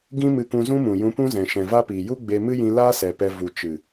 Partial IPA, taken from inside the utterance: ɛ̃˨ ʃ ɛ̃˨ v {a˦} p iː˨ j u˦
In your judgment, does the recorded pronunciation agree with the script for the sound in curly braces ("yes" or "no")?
yes